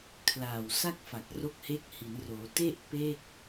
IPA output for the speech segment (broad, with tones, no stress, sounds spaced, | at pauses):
kʰ l aː˨˩ w s a˥˩ k̚ f a˨˩ k̚ r o˦˥ k̚ h e˦˥ k̚ h i˩˦ n r oː˩˦ t e˥˩ ʔ p e˥˩ k̚